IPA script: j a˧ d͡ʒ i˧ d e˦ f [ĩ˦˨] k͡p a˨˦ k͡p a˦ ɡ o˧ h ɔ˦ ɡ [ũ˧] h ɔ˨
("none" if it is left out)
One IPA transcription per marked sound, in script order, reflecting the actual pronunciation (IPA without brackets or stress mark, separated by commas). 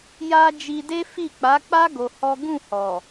i˦˨, ũ˦˨